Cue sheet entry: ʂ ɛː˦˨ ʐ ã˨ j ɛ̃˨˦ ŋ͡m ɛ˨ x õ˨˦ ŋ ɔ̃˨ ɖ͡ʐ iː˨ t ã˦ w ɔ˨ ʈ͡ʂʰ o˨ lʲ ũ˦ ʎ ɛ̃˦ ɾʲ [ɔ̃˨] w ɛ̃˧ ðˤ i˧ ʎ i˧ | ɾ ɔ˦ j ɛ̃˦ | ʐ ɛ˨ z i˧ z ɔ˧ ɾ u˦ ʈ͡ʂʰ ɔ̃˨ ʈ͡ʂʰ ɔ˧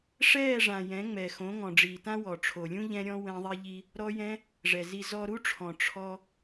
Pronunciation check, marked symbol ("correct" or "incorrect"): incorrect